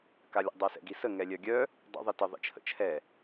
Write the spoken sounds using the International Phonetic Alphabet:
kalʲə̰ dˤasɛ̰ɡisə ŋɛlʲœɡʲœ | dˤə̰ ðˤitə ðˤḭt͡ʃʰə̰t͡ʃʰɛ

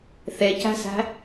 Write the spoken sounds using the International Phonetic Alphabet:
θecæ̤sæ̤

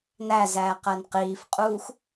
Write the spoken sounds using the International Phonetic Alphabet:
næzæː qænqiːfqʼuːx

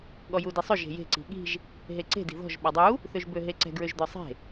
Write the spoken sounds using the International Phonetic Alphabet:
ɠɔjudisˤø ʒe̤je̤ ǀi̤ɠi̤ʒ | ɦeǀe̤ di̤ðɔ̤ʒ ɓɔdˤu | θøʒbøɦeǀɛ̤ ɡɹøʒd̪ɔsˤe̤

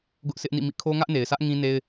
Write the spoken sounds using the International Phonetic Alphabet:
ɡʊ˦ʔsɪ˦ʔnḭ˦˨mḭ˦˨ kʰo˦ŋä˦ʔne˨ɪ̯sä˦ʔ ŋĩ˦ ne˦ɪ̯

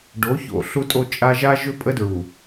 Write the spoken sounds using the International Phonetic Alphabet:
ɖo˨˦ço̰˨ ɬu˦tʼo˦ t͡ʃʼa˦ ʒa˦ʒʏ˦pʼə˦dɹu˨

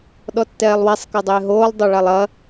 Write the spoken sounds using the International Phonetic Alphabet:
ɗɔtːɛːlˠwɛsˤ kɐdˤɪːɦoːlˠ dˤoɭalˠɐ

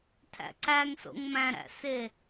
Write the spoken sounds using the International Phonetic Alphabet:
tʰæ̰ǀæŋ so̰ŋmæ̃ɾæ̰se

